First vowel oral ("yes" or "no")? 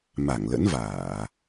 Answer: yes